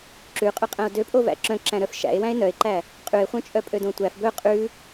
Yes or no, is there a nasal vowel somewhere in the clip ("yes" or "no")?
yes